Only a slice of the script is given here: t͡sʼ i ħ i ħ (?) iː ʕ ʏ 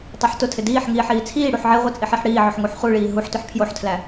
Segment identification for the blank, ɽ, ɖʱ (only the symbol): ɽ